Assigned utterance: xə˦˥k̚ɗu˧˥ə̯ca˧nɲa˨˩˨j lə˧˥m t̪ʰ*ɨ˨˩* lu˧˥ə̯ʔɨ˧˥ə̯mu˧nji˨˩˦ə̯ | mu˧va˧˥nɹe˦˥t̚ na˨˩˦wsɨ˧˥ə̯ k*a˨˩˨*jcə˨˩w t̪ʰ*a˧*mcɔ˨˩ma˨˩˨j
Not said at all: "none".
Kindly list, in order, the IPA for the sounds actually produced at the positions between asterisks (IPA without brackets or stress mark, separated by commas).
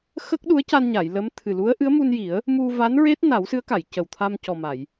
ɨ˨˩, a˨˩˨, a˧